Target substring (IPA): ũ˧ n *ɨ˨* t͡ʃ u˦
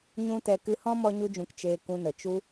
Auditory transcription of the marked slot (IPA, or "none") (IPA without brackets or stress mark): ə˨